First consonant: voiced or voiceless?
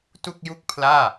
voiceless